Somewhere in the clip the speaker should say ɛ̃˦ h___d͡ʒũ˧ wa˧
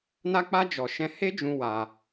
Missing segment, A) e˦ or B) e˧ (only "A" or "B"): A